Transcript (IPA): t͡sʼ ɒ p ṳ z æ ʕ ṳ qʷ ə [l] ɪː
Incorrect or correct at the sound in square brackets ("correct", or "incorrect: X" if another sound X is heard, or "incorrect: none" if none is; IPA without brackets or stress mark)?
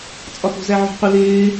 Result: correct